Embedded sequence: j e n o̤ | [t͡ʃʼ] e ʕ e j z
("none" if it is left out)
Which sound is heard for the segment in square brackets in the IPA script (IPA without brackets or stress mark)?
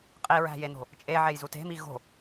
t͡ʃʼ